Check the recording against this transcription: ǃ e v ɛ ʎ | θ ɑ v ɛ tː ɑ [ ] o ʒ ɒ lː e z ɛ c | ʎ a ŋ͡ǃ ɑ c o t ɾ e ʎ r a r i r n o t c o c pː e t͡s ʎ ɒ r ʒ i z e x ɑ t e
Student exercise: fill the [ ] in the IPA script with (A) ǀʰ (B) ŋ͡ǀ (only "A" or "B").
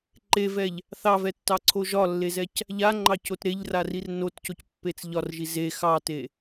A